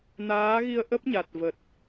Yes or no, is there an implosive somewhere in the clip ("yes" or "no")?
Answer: no